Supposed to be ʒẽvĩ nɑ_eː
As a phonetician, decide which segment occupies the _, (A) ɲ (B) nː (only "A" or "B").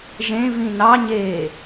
A